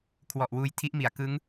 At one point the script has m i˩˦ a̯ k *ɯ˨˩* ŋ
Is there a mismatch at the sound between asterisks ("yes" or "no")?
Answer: yes